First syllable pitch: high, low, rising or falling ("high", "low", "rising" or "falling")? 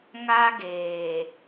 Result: high